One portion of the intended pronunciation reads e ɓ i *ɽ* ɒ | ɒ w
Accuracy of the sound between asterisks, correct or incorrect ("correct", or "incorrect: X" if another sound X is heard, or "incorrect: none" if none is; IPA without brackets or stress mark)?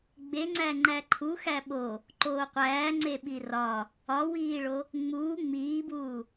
incorrect: r